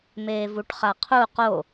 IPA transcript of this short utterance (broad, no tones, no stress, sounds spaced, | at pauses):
m eː v u ʈ χ a qʰ u q o